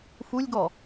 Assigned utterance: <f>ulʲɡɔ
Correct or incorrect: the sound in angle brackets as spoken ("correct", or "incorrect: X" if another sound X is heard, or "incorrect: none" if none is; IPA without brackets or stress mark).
correct